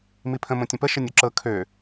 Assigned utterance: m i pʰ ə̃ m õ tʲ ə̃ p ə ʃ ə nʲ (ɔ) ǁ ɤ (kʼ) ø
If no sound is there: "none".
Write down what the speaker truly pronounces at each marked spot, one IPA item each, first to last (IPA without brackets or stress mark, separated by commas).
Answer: o, kʰ